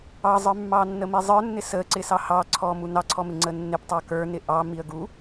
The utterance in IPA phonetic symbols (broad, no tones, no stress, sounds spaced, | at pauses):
ɑ zˤ ə˞ mː ɑ nː ə m i zˤ ə˞ nː ɪ s ə ǀ ɪ s ɑ h ɑ ǀʰ ɔ m u n ɑ ǀʰ ɔ m ɪ ŋ͡ǀ ə nː ɪ p tˤ ɑ k ə˞ n ɪ ʔ ɑ m i ə̯ ɡ u